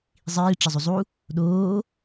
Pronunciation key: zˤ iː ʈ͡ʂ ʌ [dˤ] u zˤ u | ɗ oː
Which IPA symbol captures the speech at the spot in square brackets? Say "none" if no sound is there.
zˤ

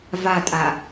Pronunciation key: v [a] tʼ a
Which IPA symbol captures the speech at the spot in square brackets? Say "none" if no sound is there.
a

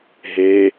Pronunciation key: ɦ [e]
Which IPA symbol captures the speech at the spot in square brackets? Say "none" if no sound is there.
e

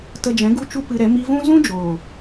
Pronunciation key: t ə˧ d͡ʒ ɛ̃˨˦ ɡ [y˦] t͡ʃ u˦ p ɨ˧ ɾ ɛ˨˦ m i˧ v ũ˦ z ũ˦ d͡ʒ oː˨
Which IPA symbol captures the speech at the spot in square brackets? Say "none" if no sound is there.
u˦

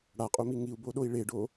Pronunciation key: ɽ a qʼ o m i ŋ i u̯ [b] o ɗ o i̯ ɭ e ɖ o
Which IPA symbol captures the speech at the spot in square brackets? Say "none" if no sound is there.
b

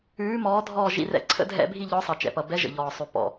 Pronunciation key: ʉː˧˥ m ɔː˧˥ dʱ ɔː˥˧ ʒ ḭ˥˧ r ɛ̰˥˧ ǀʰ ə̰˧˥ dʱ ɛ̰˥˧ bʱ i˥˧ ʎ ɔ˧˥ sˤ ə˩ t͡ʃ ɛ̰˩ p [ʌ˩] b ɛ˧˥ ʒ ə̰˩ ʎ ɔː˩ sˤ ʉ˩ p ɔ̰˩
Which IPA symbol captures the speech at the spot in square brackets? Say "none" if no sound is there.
ʌ˩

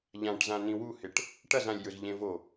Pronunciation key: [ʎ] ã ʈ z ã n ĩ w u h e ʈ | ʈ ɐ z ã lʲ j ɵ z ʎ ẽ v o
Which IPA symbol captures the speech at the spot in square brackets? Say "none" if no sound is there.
ʎ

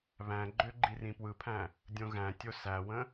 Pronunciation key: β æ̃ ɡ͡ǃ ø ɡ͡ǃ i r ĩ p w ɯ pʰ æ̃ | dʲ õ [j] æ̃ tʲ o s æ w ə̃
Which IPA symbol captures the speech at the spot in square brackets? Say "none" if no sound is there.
ɣ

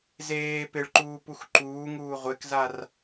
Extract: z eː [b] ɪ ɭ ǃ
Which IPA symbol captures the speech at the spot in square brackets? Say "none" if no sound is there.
p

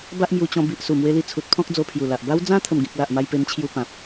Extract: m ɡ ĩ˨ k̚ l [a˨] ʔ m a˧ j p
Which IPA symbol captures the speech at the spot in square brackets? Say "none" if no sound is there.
a˨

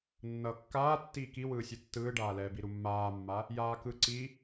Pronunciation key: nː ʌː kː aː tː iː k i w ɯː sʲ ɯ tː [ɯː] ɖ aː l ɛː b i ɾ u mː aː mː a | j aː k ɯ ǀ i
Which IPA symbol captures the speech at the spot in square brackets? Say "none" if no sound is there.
ɯː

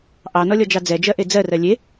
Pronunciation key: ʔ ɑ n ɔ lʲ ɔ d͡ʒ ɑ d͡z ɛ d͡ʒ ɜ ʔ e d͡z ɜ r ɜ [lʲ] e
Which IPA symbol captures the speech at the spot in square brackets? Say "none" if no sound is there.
lʲ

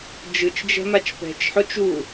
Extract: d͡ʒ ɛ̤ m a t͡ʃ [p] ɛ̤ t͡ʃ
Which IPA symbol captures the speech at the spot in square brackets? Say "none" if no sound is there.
p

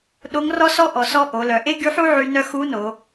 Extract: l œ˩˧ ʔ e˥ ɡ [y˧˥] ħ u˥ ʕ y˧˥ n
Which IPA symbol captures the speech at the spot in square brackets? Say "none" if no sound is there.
y˧˥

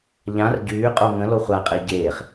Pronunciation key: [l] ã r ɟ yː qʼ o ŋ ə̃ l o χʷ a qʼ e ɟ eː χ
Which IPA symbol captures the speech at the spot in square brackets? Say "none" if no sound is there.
ʎ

